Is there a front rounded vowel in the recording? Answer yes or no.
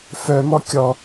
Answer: yes